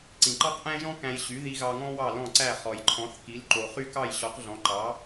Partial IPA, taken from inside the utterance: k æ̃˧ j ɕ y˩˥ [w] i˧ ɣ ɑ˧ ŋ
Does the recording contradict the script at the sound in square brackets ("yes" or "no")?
yes